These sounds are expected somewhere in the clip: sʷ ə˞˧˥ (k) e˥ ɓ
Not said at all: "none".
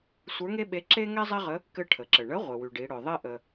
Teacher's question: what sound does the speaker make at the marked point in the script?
ŋ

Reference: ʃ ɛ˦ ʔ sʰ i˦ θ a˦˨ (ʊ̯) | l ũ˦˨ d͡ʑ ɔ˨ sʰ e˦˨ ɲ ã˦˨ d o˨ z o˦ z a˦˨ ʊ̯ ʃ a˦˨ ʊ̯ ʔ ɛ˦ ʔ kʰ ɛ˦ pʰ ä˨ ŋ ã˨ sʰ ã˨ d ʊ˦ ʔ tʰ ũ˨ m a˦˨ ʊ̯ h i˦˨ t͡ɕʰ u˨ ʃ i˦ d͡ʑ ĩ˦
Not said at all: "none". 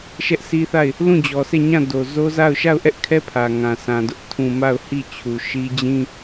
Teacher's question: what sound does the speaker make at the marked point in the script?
ɪ̯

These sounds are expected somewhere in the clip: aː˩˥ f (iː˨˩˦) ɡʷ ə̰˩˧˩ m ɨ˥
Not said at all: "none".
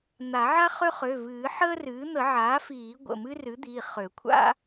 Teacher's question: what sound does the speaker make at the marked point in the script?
iː˨˩˦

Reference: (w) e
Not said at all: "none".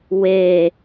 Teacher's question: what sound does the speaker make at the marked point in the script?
w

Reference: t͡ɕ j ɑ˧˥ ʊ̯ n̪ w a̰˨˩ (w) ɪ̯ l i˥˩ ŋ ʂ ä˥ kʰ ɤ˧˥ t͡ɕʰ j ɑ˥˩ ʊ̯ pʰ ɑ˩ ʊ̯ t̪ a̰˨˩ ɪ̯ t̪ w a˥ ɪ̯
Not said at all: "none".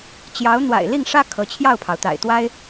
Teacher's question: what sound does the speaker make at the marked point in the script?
none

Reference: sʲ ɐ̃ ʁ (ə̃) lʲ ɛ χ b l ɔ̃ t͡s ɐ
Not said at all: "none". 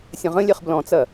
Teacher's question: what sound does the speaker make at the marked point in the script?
ə̃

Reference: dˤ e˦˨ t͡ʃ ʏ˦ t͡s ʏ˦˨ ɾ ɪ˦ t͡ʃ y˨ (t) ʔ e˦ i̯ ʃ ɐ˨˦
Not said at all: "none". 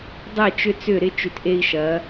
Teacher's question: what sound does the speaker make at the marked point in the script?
t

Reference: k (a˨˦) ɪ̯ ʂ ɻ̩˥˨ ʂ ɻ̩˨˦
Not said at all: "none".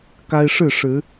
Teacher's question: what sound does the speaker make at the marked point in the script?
a˦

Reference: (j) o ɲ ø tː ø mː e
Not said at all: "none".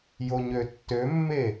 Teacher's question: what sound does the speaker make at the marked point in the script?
j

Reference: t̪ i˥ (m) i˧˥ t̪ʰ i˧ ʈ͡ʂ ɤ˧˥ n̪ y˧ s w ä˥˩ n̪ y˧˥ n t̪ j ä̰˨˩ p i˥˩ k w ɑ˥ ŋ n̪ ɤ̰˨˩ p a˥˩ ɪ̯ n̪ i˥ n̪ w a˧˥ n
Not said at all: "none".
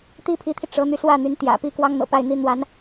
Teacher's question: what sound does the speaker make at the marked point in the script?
pʰ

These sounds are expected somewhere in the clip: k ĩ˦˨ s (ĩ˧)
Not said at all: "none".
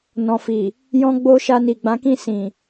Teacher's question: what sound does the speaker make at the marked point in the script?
ĩ˨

